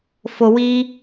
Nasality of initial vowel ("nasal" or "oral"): oral